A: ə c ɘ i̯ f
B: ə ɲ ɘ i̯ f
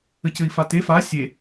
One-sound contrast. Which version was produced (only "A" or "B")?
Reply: A